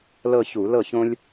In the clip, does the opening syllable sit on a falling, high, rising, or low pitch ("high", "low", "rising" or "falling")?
falling